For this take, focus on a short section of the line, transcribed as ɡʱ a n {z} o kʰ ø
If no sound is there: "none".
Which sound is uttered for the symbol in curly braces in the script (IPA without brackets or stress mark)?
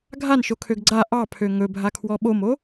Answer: ʃ